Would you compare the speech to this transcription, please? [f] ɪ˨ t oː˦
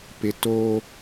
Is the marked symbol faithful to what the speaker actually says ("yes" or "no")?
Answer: no